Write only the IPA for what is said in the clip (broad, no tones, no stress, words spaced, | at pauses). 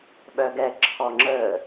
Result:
ɓœɡɛ ǁʰɔŋ͡ǁə